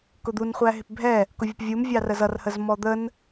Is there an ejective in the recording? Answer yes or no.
no